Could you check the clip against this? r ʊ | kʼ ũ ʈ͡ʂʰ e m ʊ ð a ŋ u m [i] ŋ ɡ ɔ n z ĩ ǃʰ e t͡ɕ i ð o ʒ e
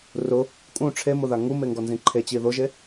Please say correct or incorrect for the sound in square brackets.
incorrect